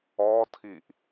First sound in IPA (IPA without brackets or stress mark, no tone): ɔ